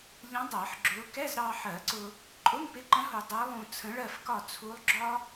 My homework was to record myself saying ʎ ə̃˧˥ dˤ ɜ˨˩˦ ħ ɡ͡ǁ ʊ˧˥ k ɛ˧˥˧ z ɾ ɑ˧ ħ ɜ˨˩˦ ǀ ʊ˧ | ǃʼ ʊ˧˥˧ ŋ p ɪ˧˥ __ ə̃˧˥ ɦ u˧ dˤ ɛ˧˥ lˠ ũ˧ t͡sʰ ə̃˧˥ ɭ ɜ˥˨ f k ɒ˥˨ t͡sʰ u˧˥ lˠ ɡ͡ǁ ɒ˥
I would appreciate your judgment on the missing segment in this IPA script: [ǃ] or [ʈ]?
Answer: ǃ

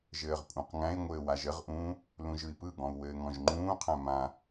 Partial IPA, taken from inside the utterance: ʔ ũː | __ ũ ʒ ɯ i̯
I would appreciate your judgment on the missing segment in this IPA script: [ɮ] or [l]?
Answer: l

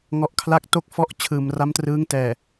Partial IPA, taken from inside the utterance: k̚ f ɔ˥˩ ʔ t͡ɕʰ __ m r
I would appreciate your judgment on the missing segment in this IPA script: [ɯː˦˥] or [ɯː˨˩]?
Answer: ɯː˨˩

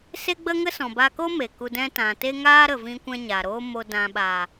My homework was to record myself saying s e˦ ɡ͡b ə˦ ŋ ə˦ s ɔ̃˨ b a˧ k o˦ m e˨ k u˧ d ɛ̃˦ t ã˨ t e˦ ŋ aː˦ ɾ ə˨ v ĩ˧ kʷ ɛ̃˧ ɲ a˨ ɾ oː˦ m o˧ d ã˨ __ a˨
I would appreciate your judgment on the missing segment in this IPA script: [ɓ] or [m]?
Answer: ɓ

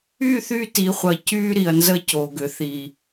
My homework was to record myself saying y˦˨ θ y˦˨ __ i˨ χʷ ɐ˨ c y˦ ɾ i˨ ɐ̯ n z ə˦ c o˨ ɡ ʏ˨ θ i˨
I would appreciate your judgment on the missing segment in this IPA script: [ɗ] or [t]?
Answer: t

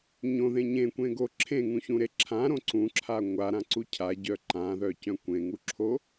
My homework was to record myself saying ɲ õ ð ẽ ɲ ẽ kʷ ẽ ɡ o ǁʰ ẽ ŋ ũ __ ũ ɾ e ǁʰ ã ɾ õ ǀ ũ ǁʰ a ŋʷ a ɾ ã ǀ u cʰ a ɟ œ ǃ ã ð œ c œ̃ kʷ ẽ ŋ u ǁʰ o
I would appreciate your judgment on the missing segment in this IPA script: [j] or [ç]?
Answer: ç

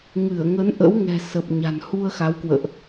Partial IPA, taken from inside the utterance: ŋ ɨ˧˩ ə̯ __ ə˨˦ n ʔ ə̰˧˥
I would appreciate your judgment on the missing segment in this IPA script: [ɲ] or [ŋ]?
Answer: ŋ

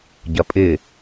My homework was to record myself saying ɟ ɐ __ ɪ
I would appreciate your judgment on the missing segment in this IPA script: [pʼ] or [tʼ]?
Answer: pʼ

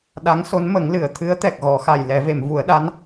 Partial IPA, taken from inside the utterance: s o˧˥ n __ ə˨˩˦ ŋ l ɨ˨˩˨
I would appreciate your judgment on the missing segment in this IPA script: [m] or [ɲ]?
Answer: m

